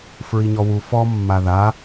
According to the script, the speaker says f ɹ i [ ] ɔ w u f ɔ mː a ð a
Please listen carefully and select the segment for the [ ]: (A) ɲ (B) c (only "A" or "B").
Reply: A